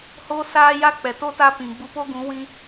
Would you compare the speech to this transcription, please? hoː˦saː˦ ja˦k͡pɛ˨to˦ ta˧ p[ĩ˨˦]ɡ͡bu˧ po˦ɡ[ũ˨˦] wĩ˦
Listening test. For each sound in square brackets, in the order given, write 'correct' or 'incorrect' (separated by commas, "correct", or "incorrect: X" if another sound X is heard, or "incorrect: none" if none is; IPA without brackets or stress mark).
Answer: incorrect: ĩ˨, correct